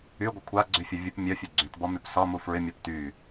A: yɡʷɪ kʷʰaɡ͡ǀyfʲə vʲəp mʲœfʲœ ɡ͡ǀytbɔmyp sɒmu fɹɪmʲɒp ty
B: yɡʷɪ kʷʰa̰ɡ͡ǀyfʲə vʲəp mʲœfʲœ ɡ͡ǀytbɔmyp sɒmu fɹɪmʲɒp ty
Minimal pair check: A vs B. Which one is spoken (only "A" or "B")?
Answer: A